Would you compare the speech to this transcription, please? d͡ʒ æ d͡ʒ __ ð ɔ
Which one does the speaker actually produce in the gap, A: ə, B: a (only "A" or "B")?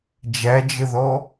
A